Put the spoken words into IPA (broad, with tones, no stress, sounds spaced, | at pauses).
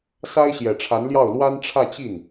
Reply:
s a˥ ɪ̯ ɕ j ɛ˨˩ ʈ͡ʂʰ a˧˥ n l j ɑ˥˩ ʊ̯ l w a˥ n ʈ͡ʂʰ ä˥˧ t͡ɕ i˥˩ n